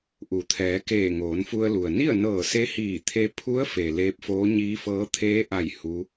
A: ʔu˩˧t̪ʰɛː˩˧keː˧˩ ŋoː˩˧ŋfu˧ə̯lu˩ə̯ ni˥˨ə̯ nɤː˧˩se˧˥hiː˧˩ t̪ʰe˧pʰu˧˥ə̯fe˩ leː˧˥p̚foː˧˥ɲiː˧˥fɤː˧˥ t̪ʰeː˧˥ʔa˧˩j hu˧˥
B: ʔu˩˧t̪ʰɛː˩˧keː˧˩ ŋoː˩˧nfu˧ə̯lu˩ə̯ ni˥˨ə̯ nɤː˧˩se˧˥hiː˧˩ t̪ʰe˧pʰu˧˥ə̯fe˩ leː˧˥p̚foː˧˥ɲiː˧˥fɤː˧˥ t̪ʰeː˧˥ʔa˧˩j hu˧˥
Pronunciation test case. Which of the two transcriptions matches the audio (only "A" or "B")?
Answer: B